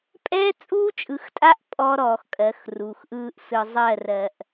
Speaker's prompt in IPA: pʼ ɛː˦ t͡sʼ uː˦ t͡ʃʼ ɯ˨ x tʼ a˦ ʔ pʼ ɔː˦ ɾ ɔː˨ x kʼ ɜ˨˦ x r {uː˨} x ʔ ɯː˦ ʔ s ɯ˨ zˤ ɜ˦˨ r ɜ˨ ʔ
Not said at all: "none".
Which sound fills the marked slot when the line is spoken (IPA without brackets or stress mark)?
uː˨